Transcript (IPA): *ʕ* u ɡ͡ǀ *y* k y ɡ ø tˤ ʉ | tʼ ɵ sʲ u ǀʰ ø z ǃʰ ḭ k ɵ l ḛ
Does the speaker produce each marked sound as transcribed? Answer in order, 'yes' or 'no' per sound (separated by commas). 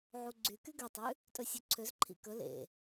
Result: yes, yes